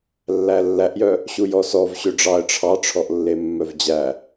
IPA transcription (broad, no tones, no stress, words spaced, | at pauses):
lːælːæʔjœ | ɕujɔsɔv ɕøɖ͡ʐɑə̯ ʈ͡ʂʰɑʈ͡ʂʰɔʔlːe mːœvd͡ʑæ